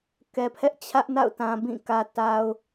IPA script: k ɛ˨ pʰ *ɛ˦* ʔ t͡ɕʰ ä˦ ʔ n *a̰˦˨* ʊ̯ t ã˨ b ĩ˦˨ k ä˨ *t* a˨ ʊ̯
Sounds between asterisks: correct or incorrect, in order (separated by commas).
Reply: correct, correct, correct